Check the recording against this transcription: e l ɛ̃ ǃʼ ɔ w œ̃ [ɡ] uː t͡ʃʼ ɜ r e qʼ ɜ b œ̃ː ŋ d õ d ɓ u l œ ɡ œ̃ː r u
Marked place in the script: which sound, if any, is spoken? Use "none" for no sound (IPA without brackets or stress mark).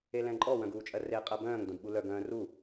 ɡ